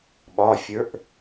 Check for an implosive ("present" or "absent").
present